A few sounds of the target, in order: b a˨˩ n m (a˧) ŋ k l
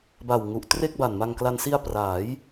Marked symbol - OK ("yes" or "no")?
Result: yes